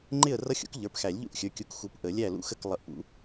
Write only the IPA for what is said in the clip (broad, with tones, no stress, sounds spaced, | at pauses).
ŋ͡ǃ ɪ˥˨ ə̯ r ʌ˦˥ xʲ ṵ˨˥ k ʎ ə˞˩˧˩ p x æ˨˩˦ lʲ ʎ ṵ˥˨ ʔ xʲ ə˞˩˧˩ kʲ u˨˥ k x u˨˥ p ʔ ə˨˩˦ lʲ æ˥˨ l ṵ˦˥ x ə˥˨ k lˠ ʌ˧˩ ʔ p ṵ˨˥